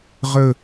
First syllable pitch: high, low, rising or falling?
falling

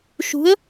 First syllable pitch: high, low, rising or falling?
rising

